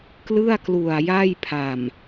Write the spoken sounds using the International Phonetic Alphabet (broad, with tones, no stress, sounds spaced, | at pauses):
k l ɯ˥˩ a̯ k l u˨˩ a̯ j a˥˩ j pʰ a˨˩ m